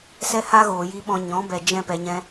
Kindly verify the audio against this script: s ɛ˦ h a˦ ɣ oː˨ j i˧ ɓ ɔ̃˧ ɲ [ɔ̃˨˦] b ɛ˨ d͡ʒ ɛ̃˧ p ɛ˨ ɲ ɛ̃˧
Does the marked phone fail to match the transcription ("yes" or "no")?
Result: no